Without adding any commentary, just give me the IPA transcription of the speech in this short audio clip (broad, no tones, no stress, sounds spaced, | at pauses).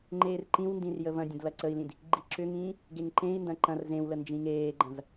ŋ͡ǃ eː r ǃ ĩ w n d ĩ r j ə v ɐ̃ dʲ ə̃ d l ɐ ǀ ə i̯ l ĩ d | ɡ͡ǃ i ǁ ʏ ŋ ĩː | ɡ e ŋ ǃ ẽ i̯ n d ɐ̃ ǃ ɐ̃ r z ẽ w l ə n d͡ʒ ĩ ŋ eː ɡ͡ǃ ɐ̃ z